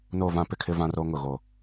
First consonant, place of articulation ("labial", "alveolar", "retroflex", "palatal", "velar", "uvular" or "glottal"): alveolar